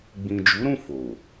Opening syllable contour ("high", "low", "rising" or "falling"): low